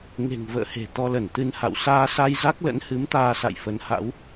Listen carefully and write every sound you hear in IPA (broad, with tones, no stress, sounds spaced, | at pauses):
ŋ e̤˨˩ ŋ v ə̰ː˧˨ h e̤˨˩ t̪ ɔ˧ l ə˧˩ n t̪ ɨ˧ n h a̰˧˨ w s aː˧ s a˧ j z a˦˥ k̚ l ə̰˧˥ n h ɨ˨˦ m t̪ aː˧ s a̰˧˨ j f ə˨˦ n h a̰˧˥ w